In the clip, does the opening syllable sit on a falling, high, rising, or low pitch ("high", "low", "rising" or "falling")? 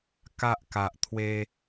low